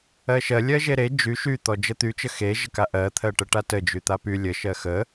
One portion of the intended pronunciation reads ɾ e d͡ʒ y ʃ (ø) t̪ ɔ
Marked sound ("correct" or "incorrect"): incorrect